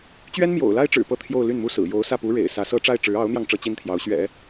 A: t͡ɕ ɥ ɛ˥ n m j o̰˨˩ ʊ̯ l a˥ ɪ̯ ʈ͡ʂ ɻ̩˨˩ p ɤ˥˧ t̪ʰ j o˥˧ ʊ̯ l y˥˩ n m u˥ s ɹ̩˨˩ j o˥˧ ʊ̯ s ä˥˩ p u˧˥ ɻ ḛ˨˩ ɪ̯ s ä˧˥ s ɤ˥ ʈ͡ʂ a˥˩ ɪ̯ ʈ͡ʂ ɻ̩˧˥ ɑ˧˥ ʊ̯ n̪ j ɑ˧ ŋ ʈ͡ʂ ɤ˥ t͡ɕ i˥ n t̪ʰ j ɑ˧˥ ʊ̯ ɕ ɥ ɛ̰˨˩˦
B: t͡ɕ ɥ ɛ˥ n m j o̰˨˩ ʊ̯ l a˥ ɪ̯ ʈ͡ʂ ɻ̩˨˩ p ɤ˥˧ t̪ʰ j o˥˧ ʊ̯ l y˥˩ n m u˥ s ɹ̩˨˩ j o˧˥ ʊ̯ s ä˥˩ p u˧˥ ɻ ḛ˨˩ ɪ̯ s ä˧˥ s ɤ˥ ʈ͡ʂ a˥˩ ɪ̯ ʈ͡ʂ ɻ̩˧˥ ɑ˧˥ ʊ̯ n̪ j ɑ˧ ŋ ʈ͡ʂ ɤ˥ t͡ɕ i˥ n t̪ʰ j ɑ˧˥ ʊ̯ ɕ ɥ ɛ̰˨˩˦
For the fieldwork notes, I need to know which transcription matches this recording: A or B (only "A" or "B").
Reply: B